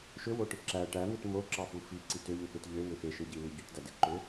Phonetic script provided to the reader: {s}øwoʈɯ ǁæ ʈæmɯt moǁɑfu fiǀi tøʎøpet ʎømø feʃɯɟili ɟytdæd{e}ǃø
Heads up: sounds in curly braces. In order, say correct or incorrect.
incorrect, correct

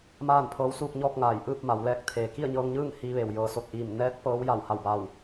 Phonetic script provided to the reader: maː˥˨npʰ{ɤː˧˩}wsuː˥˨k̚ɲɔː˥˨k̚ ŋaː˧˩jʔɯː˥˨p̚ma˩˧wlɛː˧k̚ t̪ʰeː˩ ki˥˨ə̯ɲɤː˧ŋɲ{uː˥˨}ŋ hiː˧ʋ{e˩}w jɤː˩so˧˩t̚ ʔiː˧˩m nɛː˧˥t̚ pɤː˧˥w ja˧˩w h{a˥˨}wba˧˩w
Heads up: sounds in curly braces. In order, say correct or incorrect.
incorrect, incorrect, correct, incorrect

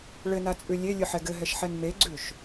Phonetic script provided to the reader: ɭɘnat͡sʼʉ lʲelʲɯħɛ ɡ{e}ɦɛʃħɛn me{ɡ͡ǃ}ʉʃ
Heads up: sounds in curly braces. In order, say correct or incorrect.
incorrect, incorrect

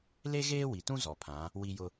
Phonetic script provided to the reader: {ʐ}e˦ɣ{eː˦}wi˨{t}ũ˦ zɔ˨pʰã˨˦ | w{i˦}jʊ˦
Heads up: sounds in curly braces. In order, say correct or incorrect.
incorrect, correct, correct, correct

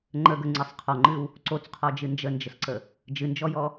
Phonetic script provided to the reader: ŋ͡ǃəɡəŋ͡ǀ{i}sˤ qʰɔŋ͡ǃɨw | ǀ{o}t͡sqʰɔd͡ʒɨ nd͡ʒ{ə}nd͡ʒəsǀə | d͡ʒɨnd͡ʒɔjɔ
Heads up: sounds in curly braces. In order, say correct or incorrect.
incorrect, correct, correct

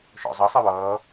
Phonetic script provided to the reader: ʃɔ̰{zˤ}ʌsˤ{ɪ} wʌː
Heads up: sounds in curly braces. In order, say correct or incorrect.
correct, correct

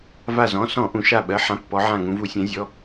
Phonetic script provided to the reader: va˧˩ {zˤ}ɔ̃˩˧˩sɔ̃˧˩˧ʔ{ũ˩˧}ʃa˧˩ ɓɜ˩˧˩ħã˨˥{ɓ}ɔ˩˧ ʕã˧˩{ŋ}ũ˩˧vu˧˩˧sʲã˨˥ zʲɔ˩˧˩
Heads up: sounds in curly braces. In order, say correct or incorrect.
incorrect, correct, incorrect, correct

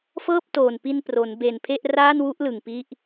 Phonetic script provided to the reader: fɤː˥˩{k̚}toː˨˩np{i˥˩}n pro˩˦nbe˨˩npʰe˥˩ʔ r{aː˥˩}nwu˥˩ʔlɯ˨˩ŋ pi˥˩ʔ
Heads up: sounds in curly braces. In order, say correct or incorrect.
incorrect, incorrect, correct

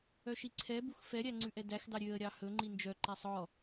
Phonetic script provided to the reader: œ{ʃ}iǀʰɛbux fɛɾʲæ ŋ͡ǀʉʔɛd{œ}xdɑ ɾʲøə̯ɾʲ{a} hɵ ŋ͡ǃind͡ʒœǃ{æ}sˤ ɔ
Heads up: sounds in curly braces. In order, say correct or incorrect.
correct, incorrect, incorrect, correct

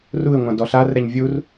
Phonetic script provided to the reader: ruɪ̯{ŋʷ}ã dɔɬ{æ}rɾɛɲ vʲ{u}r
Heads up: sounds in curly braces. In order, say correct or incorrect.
correct, incorrect, correct

